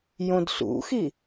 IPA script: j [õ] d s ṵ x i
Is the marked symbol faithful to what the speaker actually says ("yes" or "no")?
yes